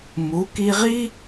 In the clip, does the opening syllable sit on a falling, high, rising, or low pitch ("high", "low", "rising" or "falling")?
rising